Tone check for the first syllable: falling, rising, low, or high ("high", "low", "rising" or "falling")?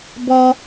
high